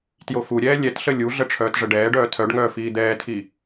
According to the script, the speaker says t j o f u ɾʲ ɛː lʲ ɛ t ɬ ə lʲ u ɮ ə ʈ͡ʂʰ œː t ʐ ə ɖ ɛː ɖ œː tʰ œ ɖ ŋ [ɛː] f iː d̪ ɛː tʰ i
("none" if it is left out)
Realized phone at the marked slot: œː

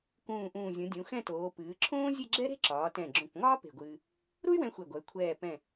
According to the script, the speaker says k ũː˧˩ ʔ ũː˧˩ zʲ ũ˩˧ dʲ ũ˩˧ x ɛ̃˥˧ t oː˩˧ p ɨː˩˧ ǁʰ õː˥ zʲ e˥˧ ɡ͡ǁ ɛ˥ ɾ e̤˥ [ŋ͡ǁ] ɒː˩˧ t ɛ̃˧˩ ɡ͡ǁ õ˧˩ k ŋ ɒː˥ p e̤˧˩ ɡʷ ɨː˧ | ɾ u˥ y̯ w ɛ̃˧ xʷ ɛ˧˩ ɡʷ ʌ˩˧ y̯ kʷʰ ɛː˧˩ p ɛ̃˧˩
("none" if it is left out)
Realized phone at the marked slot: ǁ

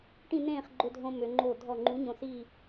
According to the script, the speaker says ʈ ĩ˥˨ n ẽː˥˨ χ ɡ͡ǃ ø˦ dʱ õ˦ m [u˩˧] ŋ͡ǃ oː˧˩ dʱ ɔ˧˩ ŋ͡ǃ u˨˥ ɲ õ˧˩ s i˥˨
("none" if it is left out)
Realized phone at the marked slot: ø˩˧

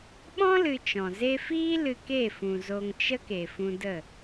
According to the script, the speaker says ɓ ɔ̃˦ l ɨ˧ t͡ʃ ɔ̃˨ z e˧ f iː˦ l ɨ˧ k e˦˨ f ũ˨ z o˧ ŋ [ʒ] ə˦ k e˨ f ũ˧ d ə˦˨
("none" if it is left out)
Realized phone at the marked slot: t͡ʃ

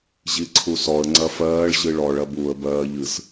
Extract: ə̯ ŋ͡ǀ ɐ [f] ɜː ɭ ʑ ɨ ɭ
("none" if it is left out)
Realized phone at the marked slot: f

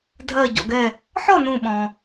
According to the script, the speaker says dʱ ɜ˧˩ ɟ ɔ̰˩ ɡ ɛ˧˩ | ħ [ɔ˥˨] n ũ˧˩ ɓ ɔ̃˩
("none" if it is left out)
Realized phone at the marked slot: ɔ˥˨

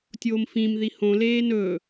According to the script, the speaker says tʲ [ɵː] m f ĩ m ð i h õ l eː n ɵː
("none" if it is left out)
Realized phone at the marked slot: oː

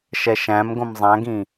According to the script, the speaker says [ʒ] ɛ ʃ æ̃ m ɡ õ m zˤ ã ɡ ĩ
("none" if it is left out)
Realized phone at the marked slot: ʃ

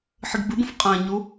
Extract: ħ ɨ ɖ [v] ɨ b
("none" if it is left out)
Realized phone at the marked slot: b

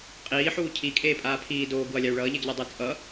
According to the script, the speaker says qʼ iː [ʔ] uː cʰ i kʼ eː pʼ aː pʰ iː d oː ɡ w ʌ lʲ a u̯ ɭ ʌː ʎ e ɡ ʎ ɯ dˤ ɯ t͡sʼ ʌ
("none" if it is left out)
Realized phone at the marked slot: ħ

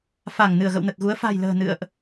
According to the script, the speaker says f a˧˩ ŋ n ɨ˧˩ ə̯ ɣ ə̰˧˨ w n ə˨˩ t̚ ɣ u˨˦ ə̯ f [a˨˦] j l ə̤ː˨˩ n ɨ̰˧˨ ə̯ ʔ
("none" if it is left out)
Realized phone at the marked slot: a̤˨˩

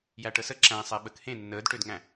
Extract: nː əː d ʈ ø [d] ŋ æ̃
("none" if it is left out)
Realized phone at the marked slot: d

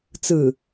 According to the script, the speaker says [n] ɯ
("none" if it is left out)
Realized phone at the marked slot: t͡s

